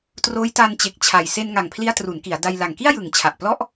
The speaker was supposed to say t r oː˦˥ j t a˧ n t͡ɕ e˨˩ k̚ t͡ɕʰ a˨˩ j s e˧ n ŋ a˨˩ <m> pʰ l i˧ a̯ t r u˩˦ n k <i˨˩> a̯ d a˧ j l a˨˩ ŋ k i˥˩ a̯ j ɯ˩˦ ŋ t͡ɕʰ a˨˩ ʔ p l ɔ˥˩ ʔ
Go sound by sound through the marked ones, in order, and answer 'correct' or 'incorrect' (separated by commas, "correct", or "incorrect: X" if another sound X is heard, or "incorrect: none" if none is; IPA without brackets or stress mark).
incorrect: ŋ, incorrect: i˩˦